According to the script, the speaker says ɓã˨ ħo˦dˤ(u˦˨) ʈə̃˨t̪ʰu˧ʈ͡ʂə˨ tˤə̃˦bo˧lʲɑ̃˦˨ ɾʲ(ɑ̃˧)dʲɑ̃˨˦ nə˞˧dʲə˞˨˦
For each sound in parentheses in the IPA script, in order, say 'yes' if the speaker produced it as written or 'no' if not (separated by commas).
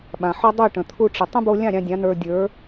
yes, yes